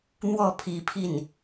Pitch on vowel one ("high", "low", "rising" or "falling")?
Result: falling